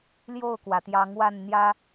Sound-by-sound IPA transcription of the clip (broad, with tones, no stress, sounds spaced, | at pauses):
l j o˥˨ ʊ̯ k w ä˩ t̪ j ɑ˨˦ ŋ w a˥˨ n n̪ j ä˦